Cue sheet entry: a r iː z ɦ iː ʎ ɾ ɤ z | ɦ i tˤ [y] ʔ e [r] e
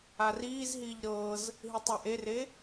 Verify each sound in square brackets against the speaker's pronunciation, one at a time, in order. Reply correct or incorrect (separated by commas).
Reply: incorrect, correct